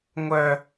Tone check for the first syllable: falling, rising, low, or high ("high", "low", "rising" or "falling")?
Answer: high